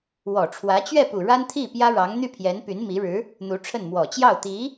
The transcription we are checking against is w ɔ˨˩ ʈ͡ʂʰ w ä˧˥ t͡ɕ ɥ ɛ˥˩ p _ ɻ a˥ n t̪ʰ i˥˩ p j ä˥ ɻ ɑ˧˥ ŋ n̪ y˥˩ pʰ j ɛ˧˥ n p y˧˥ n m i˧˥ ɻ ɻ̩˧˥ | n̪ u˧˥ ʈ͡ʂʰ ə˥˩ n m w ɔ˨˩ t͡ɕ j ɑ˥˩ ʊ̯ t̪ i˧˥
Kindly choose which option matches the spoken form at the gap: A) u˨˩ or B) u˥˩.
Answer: A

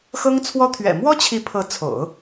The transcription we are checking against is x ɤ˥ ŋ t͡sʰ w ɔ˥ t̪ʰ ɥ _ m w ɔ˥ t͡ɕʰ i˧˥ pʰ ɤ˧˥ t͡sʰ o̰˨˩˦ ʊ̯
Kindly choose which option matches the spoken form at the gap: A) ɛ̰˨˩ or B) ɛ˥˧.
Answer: A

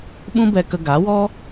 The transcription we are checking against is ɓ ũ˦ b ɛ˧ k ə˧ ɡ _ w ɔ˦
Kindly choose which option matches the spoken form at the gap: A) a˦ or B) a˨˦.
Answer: B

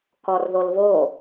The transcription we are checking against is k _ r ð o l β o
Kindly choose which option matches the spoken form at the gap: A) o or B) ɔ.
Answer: B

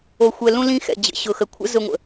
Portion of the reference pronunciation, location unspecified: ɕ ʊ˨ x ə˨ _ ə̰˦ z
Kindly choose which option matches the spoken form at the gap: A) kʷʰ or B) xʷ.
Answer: A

